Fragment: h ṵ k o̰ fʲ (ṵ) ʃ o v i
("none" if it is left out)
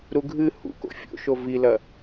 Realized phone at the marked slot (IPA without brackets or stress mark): o̰